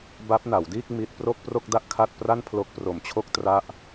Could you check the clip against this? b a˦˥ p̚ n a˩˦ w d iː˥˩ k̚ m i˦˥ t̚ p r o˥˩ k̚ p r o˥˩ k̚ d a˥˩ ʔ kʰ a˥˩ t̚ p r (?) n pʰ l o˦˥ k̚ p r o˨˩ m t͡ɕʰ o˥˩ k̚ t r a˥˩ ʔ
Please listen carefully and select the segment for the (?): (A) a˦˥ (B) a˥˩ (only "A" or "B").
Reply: B